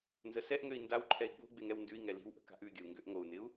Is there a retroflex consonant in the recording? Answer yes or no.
no